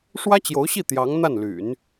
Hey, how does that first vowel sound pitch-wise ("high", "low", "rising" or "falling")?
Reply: high